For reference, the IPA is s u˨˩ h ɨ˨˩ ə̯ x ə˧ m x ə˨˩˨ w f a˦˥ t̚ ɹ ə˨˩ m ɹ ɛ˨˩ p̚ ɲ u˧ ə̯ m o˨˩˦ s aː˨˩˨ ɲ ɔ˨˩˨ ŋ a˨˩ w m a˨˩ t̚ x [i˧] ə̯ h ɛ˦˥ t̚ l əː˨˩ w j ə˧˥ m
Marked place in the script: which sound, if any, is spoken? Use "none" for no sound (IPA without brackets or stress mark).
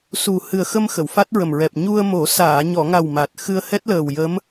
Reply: ɨ˧